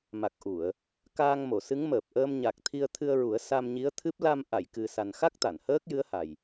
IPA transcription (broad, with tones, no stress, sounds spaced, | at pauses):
m a˨˩ k̚ ʔ u˨˩˨ ə̯ | k aː˧ ŋ m o˨˩˨ s ɨ˧˥ ŋ m əː˨˩ p̚ ʔ əː˧ m ɲ a˨˩ k̚ t̪ʰ i˧ ə̯ t̪ʰ ɨ˧ ə̯ ɹ u˨˩˦ ə̯ s a˧ m ɲ i˧˥ ə̯ t̪ʰ ɨ˦˥ p̚ l a˧ m ʔ a˨˩˨ j k ɨ˨˩ s a˨˩ n x a˦˥ k̚ t̪ a˨˩˨ n h əː˦˥ k̚ j ɨ˧˥ ə̯ h a˨˩ j